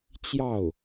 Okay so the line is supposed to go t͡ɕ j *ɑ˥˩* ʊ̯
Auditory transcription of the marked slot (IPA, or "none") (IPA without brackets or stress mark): ɑ˥˩